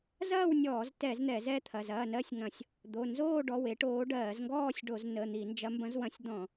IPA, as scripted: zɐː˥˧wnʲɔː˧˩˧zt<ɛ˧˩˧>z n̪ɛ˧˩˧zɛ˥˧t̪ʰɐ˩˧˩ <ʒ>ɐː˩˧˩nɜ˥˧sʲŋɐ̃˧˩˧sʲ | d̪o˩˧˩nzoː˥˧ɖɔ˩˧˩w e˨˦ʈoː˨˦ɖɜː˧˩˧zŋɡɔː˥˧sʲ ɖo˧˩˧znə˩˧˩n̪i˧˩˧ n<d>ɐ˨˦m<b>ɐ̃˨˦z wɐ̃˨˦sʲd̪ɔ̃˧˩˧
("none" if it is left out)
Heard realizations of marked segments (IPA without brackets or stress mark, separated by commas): ɛ˧˩˧, z, d͡ʒ, b